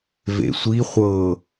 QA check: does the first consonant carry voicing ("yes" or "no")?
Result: yes